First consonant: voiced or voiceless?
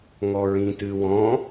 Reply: voiced